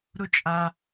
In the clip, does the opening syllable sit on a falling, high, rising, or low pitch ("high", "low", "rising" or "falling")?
high